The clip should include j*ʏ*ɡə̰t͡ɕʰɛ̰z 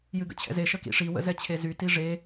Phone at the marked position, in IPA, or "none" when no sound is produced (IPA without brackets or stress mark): ɨ